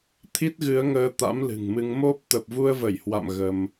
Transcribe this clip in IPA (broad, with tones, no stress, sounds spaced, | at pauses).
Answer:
t̪ʰ i˦˥ t̚ ɣ ɨ˨˦ ə̯ ŋ əː˧ t̪ a̰˧˥ m l ɨ̤˨˩ ŋ m ɨ˧ ŋ m o˦˥ p̚ t̪ ə˨˩ p̚ v u˧ ə̯ v ə˧˩ j h w a̰˧˨ m ɣ ə˧ m